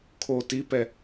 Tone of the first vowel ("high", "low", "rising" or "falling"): low